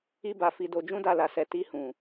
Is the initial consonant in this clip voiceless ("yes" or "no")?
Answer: no